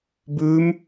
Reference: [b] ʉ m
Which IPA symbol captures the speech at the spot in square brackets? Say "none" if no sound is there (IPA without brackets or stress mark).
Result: b